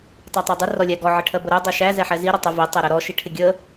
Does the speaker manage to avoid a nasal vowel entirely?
yes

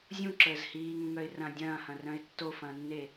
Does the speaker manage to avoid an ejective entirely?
yes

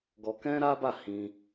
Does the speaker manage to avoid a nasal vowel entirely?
no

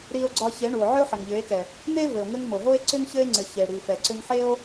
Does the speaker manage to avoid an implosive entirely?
yes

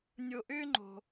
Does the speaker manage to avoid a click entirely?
no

